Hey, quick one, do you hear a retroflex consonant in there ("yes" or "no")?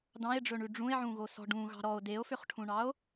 yes